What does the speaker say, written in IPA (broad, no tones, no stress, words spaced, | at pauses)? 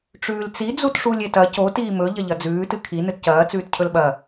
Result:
ʈ͡ʂʉːlt͡si d͡zutʂulʲetɐ co tiːmɵ ʎɐʎɐd͡zʉː tɨkʰi nɨtcɐː t͡sʉːtcʰɵlɓɐ